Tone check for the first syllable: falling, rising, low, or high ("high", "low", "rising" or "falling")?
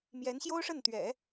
rising